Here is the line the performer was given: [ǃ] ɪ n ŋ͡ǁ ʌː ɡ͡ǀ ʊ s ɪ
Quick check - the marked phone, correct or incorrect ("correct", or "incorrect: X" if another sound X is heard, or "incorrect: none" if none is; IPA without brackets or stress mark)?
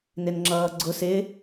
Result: incorrect: n